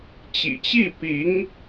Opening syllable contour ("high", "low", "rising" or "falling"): low